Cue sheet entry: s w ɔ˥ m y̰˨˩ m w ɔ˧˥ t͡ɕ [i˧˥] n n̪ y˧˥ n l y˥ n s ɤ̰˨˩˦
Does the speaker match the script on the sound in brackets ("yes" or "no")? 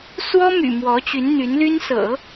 no